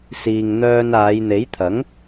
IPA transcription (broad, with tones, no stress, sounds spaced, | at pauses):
s iː˨ ŋ n̪ œː˧ n aː˨˧ j n̪ e˨˥ j t̪ʰ ɐ˨˥ ŋ